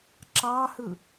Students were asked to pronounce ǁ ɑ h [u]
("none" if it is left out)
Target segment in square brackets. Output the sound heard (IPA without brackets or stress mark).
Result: ɯ